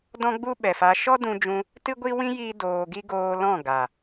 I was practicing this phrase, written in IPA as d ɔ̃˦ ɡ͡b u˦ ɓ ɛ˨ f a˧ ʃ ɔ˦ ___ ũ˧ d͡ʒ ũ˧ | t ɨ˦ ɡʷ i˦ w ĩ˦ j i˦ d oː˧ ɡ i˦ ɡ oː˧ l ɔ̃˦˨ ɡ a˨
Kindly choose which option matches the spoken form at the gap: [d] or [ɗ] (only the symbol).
d